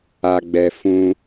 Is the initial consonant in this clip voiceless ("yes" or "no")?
no